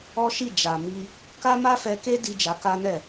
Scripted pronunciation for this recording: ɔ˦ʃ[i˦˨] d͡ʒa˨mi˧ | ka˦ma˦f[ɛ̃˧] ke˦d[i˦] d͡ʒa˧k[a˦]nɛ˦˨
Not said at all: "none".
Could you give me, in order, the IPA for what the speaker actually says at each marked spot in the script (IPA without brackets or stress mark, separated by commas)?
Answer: i˦˨, ɛ˧, i˧, a˦